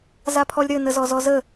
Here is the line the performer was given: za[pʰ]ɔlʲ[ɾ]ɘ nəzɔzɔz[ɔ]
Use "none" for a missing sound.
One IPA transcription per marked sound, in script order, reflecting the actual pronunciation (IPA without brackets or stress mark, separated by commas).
pʰ, ɾ, ə